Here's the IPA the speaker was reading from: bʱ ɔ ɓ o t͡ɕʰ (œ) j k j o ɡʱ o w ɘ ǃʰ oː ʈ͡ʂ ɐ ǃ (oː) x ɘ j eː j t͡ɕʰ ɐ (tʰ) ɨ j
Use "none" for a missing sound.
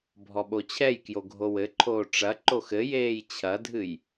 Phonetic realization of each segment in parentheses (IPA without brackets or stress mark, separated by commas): ɛ, o, dʱ